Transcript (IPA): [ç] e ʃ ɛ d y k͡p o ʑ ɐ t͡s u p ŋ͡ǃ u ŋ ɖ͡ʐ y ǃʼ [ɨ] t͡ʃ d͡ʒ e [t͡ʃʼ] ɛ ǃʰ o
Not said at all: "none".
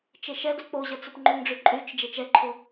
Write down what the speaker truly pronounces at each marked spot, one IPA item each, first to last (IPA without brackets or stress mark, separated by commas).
t͡ʃ, y, t͡ʃ